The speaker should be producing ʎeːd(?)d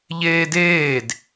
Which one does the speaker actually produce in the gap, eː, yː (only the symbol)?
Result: eː